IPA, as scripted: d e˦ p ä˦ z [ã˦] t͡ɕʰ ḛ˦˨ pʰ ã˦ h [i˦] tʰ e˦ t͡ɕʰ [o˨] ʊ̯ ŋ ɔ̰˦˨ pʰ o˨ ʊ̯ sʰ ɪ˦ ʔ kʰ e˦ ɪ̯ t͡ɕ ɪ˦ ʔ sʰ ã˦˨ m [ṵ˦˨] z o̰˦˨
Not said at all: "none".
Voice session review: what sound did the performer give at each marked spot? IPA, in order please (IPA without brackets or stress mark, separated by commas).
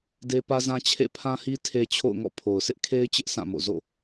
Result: ã˦, i˦, o̰˦˨, o̰˦˨